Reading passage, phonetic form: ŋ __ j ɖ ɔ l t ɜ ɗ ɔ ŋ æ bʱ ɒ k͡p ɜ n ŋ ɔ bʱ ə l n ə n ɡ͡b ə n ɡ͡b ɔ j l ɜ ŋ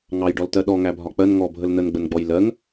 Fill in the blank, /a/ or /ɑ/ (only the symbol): ɑ